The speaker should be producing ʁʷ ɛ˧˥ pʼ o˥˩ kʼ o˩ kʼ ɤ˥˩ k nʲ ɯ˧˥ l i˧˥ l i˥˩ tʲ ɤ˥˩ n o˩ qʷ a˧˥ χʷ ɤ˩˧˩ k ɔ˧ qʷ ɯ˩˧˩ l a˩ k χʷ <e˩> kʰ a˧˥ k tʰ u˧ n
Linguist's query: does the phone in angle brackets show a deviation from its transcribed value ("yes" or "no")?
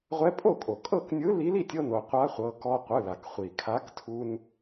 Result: yes